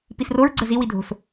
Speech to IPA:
pisroɹ ɡ͡ǀəzi widʱo̤s

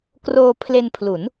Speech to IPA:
kroː˧pʰle˧npʰlu˩˦n

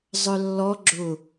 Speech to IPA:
zˤœlːɔ ɡ͡ǁʊ

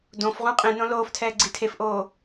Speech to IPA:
dõfʁũ qʼĩnõ loːftʰɛːɡ͡ǀi tʰefʔoː

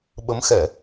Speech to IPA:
ɓə˨˦mxɛ˧˩˨

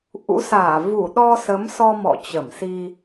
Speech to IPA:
ʔṵ˧˥saː˧˩ vu˧˩ɗɔ˧ sə˨˦msɔ˧ mɔ̰˧˨t͡ɕə˧˩msi˧

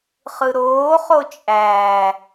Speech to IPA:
χɯɾoːχo t͡ʃʼæː

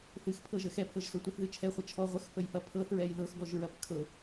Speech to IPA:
θɨxpʰɤʒə xɛpʰɤʒsɤ tʷəθðɨ t͡ʃʰɛχʷə t͡ʃʰɔ ʁʷəxpəjfɐ pʰɤθɹɛj ðɤxɡɔʒɹɐp kʰɤ

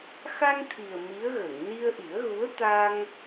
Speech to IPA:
xa˧ŋt̪ʰi˨˩ə̯ mi˧˥ə̯ɣə˨˩˨ŋ ni˧ə̯ʔi˨˩˦ə̯ɣu˧˥ə̯t̪a˧ŋ

